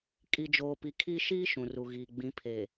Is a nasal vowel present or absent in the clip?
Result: present